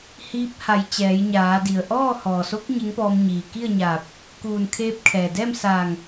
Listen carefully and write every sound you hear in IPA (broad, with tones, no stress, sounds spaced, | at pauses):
h iː˧˥ p̚ h a˩˧ j t͡ɕ ɛː˩˧ j ɲ aː˩˧ d i˩ ə̯ ʔ ɔː˥˨ h ɔː˩ s o˧˥ k̚ ɲ e˧˥ ŋ p ɔː˧ m ɲ iː˩ k i˥˨ ə̯ ɲ aː˧˩ p̚ | k uː˧˩ n kʰ eː˧˥ p̚ kʰ ɛː˩ d ɛː˥˨ m s aː˧˩ ŋ